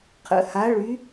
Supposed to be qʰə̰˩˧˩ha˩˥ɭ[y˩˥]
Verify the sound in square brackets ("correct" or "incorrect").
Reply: correct